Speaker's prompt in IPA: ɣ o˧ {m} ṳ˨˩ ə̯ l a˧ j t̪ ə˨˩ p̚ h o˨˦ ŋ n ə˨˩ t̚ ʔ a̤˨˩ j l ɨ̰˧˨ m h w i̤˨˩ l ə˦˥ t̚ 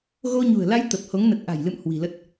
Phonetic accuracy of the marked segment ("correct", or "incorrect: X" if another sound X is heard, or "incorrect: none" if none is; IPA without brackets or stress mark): incorrect: ɲ